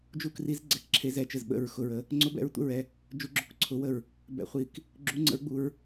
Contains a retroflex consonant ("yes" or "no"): no